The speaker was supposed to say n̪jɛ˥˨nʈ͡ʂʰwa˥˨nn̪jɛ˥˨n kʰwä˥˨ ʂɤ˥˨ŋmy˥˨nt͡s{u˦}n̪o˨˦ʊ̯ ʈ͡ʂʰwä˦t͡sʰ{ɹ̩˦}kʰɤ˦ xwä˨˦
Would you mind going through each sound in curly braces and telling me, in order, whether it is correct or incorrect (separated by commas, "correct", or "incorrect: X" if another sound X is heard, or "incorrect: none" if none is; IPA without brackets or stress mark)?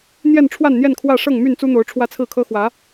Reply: correct, incorrect: ɹ̩˥˨